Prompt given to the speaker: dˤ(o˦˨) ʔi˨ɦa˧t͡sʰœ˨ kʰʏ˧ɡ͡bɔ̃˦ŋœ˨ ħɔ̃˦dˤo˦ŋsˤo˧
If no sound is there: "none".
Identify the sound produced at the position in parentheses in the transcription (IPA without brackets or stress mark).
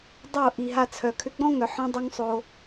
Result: o˦˨